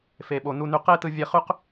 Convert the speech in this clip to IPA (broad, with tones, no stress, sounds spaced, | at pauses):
f e˩ ɓ o˩ n u˧ n y˧ q e˥ t ɯ˧ vʲ e˧ χ y˥ q